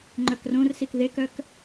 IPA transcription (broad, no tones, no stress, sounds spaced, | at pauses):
ŋ͡ǃ œ k r õ r s i k ð e k œ k